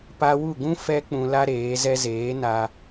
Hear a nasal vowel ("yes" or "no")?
yes